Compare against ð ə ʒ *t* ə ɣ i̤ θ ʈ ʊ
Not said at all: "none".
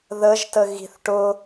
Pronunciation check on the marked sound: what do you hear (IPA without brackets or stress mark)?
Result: t